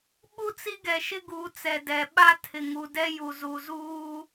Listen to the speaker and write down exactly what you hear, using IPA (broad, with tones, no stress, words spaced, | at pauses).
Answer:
ɓu˦t͡si˦ ɡɛ˨ʃɪ˦ɡuː˨˦ t͡sɛ˨dɛ˨ɓa˦ tʰɪ˨ŋu˨ dɛ˦ju˨zu˨zuː˦